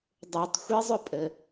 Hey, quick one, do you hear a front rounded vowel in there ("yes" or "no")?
yes